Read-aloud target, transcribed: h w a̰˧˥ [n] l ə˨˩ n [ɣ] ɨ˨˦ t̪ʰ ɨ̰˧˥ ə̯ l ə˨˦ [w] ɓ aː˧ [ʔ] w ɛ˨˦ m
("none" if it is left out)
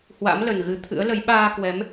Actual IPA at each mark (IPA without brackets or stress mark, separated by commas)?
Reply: m, ɣ, j, k